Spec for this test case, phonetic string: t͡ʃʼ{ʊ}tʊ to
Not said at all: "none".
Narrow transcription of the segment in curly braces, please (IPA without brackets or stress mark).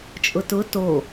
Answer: ʊ